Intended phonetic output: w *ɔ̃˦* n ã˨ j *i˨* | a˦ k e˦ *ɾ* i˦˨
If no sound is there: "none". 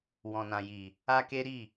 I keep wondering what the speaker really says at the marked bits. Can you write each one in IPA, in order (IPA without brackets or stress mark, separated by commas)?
ɔ̃˨, i˨, ɾ